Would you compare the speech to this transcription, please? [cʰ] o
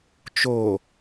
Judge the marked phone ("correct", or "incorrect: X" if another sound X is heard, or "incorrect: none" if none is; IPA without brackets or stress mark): incorrect: t͡ʃ